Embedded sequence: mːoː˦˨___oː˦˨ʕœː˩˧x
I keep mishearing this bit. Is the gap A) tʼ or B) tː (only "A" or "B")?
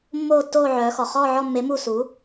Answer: B